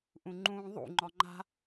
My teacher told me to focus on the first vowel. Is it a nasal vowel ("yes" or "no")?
yes